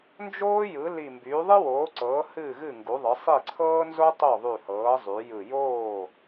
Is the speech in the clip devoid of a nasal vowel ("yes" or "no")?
yes